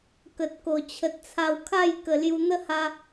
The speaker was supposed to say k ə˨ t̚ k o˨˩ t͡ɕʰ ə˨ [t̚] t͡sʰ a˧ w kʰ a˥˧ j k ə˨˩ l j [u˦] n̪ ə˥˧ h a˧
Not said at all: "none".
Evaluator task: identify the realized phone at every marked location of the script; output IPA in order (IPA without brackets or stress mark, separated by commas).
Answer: t̚, u˧